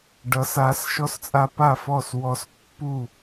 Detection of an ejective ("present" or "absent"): present